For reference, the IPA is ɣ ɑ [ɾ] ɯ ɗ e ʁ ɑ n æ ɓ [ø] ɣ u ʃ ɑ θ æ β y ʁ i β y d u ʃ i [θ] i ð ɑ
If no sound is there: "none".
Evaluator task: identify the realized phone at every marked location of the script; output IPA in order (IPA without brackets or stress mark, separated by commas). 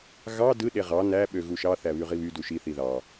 d, ø, θ